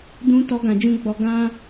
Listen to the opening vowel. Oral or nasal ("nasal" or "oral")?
nasal